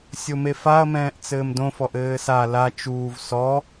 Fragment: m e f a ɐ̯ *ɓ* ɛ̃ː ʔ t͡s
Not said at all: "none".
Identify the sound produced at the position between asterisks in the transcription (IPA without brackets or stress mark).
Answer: m